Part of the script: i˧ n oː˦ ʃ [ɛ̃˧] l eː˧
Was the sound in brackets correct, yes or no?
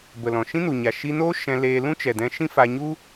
yes